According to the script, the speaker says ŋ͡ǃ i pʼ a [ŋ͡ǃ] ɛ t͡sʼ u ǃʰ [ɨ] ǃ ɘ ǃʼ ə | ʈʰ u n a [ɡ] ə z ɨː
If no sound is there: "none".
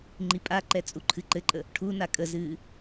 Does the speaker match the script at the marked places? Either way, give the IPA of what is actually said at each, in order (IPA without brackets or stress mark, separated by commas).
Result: ǃ, ɨ, kʼ